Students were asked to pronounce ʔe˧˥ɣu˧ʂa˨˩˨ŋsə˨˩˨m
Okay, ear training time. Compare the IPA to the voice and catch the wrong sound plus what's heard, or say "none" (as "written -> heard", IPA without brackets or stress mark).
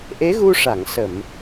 none